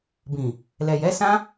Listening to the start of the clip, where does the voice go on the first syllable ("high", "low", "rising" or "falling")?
low